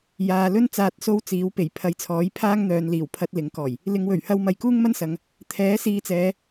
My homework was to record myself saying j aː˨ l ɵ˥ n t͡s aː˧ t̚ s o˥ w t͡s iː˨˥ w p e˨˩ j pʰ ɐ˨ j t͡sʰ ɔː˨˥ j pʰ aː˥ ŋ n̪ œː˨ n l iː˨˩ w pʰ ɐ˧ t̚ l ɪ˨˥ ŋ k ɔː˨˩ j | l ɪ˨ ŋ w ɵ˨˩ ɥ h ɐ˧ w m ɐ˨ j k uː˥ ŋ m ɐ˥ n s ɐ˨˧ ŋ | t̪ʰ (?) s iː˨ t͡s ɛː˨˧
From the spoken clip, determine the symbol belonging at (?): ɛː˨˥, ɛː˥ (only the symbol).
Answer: ɛː˨˥